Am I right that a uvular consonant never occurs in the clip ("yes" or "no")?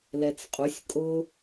no